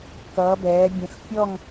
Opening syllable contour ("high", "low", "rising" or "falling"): rising